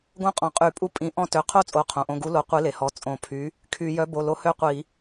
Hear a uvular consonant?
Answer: yes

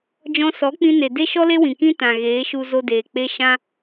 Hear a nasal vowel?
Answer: yes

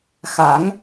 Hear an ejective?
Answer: no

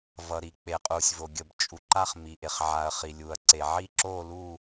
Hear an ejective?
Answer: yes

